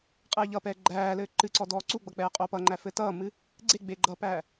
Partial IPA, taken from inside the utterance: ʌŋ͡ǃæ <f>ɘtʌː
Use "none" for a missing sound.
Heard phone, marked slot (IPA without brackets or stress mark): f